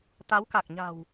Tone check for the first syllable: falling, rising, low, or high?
rising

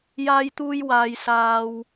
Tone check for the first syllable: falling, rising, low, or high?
high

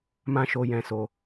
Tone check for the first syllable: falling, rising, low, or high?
high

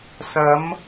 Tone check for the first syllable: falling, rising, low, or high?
rising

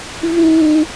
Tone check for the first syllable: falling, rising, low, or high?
high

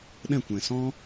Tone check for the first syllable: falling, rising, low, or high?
falling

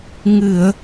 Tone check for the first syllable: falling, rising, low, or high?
low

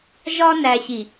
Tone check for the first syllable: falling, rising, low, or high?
high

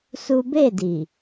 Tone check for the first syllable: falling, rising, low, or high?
high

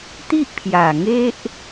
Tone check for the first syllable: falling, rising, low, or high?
high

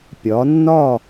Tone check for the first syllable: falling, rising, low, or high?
rising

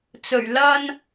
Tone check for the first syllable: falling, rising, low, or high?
low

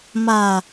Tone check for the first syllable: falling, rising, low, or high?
low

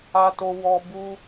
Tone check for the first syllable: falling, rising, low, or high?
high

